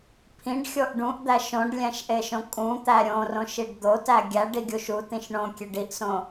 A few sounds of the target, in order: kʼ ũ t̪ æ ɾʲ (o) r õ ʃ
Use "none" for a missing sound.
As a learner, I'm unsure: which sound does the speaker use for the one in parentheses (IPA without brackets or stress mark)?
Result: õ